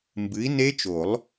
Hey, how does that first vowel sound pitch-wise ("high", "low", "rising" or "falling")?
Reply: rising